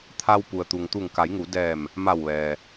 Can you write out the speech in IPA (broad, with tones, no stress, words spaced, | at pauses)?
t̪ʰa˧wpu˩ə̯ t̪u˩ŋt̪u˧˩ŋka˩˧jŋu˩˧ dɛː˧˩m | ma˧˩wʋɛː˩